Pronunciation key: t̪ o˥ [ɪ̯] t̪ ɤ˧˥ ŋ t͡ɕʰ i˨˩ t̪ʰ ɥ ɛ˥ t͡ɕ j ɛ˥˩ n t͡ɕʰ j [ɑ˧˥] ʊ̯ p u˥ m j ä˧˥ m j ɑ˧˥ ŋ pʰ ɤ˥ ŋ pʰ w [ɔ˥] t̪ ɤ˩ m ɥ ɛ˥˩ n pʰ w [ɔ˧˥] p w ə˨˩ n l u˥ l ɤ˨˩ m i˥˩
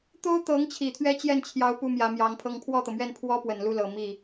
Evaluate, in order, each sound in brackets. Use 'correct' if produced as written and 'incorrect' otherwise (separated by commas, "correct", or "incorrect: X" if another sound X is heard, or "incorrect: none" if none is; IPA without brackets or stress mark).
incorrect: ʊ̯, correct, incorrect: ɔ˥˩, incorrect: ɔ˥